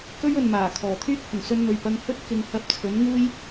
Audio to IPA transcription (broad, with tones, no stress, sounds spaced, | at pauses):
k ɵ˥ ɥ ɵ˨ n m aː˨˩ kʰ ɔː˨˩ t̪ʰ yː˥ k̚ h ʊ˨˩ ŋ s ɵ˧ n n̪ ɵ˨˩ ɥ p ɐ˧ ŋ h ɵ˥ t̚ k ɪ˨˧ ŋ h ɐ˧ p̚ t͡sʰ ɵ˨˥ n ŋ uː˥ j